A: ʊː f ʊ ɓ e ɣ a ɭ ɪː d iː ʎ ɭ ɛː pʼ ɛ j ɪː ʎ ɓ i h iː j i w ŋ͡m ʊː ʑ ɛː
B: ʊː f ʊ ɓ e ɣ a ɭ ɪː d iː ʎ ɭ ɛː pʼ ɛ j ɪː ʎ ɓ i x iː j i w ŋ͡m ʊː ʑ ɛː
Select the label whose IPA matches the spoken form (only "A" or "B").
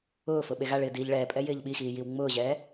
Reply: B